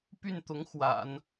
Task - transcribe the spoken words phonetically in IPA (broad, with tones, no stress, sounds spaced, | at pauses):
p y˥˩ n t̪ ʊ˧˥ ŋ x w a̰˨˩˦ n